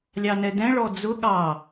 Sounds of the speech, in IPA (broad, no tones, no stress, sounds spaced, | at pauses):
lʲ ɑ n ɛ d ɛ̃ ɭ ɔ d͡z ʊ ɠ ɑ